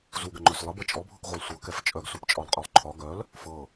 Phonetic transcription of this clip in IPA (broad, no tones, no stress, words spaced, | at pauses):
zuɡəŋ͡ǃœs lˠəbɤ t͡ʃʼɔbʱɤkʁʷalˠ sʷɤkɛf t͡ʃʼœɡsupt͡ʃʼɒlˠqʼœlˠ ǃʰɒ ɡœl | fɤ